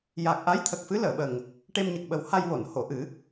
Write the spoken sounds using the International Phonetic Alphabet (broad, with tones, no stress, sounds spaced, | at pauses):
j a˨˩ k̚ ʔ a˧˥ j t̪ʰ ə˨˩ k̚ f ɨ˧˥ l əː˨˩˨ ɓ ə˨˩ ŋ | ʈ e˧ m ɲ ə˨˩ k̚ ɓ ə˨˩˦ w h a˧ j w o˨˩˨ n h o˨˩˨ ʔ ɨ˨˩˦